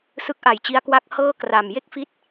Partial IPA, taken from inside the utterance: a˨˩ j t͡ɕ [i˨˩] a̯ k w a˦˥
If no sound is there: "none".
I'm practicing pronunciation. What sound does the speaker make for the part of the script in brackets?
i˦˥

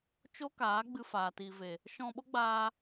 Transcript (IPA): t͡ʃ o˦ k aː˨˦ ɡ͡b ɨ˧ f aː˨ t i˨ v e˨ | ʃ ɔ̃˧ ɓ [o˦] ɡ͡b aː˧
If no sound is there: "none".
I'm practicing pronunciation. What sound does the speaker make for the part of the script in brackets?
o˦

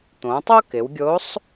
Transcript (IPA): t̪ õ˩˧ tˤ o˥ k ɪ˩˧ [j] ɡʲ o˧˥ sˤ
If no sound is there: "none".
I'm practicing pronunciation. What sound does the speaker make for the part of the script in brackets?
w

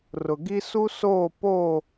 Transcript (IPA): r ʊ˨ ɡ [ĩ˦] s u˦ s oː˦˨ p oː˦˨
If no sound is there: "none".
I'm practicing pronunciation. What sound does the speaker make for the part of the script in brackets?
i˦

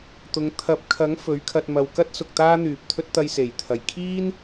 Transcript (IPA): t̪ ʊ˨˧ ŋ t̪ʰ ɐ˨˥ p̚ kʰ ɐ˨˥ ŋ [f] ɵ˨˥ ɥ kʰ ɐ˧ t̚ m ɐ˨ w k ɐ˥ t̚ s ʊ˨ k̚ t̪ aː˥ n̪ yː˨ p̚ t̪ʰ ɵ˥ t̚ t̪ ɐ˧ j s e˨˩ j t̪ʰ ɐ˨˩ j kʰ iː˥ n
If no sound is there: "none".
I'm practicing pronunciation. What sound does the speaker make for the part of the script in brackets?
f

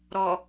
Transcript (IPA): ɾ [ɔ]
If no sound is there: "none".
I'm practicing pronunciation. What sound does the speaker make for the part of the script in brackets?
ɔ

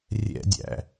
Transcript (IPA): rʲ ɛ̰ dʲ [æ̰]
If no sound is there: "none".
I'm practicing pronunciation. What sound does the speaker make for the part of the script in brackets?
æ̰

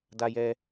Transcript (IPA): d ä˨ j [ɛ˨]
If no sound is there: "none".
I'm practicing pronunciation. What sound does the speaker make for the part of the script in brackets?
ɛ˨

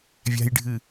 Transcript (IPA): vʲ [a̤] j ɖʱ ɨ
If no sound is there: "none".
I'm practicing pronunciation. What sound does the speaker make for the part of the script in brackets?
a̤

